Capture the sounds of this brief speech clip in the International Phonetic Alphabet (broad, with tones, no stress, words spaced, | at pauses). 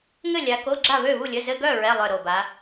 ŋɘ˥˨lʲa˨˦ ko˧˥˧ɡ͡ǁa˥˨βø˥˨ βu˥˨lʲə˧˥˧ zɘ˧˥˧ɡœ˥˨ ɹɛ˧˥˧lˠœ˧˩ɾo˧˩ba˨˦